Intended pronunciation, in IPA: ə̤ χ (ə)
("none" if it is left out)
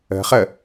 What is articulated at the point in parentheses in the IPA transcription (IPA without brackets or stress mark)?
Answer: ə